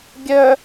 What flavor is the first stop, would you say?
plain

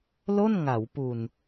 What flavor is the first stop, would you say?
plain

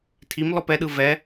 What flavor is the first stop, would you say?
aspirated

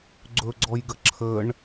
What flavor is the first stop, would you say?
click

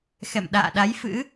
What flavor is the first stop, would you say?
implosive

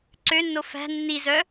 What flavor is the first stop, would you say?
click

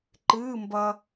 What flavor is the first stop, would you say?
click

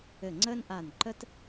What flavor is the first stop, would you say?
click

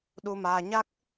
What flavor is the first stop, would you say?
implosive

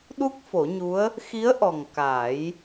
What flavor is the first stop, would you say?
implosive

